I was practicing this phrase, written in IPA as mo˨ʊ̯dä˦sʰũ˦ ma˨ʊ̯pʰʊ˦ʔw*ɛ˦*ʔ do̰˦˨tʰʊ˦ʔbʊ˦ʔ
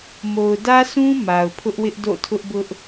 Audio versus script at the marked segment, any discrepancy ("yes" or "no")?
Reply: yes